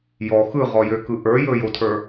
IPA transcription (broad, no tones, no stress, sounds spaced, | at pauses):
j ɔ x ɯ ʁ ɔ j ø k ɯ ʔ ə˞ j ɵ j o tʰ ə˞